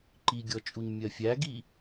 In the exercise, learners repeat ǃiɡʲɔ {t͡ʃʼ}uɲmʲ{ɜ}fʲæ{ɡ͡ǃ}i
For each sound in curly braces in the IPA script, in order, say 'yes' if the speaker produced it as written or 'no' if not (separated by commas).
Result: yes, yes, no